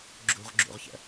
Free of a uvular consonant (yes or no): no